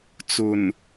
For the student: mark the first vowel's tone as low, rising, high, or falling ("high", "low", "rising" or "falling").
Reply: low